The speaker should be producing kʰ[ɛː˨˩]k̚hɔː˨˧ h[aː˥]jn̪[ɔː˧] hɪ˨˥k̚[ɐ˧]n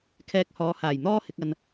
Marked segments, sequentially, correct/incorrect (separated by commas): incorrect, incorrect, correct, correct